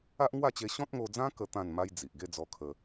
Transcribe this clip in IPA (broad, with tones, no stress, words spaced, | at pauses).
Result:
a˦ʔŋwa˥˧t͡ɕe˧ ɕɔ̃˦t̚ŋo˧d͡zã˦ kə˦ t̪ã˥˧nma˦j d͡zi˨ʔ ɡe˥˧d͡zɔ˧kʰə˧